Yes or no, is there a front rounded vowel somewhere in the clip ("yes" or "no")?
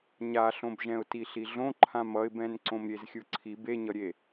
no